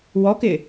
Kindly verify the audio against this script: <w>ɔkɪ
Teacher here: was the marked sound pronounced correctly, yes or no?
yes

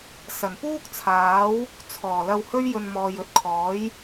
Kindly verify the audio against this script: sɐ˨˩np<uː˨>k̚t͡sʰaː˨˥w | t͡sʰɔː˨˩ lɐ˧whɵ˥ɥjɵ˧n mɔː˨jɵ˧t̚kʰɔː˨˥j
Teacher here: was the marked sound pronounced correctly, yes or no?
no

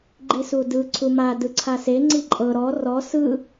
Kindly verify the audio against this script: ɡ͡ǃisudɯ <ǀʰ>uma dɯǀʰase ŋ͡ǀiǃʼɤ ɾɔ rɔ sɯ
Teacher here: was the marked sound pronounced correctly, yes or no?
yes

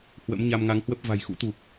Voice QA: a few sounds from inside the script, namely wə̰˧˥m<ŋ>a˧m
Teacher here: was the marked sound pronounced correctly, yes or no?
no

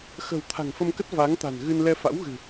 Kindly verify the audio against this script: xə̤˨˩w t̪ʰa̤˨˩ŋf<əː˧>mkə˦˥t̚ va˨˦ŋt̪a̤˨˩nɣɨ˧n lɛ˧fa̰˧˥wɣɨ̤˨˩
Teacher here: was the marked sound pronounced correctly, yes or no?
no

